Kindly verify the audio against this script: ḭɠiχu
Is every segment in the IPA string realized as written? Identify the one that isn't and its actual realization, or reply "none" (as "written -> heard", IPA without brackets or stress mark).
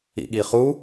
none